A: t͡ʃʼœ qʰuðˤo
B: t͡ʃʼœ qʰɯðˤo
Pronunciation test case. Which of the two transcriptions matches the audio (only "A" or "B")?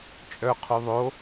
A